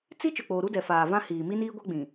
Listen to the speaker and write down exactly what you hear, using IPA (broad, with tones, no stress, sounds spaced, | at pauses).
t͡s i˦ t͡ʃ ʊ˨ k͡p oː˨ ɾ u˦ d ɛ˨ f aː˨ v ã˦ h iː˨ m i˦ n iː˦ ɡʷ a˦ ɡ͡b ĩ˨